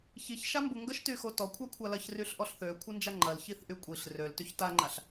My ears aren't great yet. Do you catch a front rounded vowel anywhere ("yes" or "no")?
yes